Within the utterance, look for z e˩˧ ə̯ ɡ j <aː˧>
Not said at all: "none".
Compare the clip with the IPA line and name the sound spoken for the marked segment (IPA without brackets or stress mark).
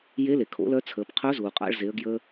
əː˧